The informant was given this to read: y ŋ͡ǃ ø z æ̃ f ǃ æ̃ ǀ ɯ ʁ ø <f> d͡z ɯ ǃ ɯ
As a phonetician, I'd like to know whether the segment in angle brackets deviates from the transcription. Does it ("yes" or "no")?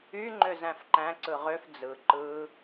no